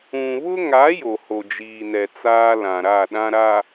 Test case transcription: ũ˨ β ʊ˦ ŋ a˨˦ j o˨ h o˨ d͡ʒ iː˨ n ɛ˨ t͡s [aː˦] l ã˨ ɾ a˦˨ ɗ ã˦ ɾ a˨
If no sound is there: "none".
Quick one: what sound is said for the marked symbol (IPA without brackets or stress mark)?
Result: aː˦